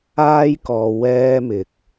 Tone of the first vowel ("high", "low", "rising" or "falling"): high